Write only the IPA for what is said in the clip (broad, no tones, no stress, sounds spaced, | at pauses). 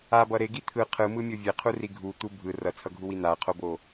a b ʌ ɾ e ɡ i t̪ʰ ɯ qʰ ɯ m ɯ mʲ o vʲ e qʰ u r i ɡʱ u t̪ u bʱ ɯ r ʌ t͡sʰ ʌ ɡʱ u w i n̪ a qʰ o b o